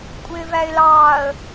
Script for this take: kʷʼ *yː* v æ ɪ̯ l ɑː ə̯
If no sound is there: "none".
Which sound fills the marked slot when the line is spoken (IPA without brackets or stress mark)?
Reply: ɪː